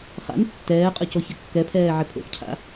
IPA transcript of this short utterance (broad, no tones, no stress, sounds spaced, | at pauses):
χ a̰ n tː ɛː qʼ ʊ c o ç ɪ kː ɛ pʰ ɛː ʕ ɪ pʰ o̰ x cʰ a̰